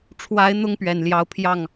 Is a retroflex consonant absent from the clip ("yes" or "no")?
no